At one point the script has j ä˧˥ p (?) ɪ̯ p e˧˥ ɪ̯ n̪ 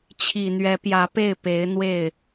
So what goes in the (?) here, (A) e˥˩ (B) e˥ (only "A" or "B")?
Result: A